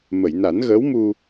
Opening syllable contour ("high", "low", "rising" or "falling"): low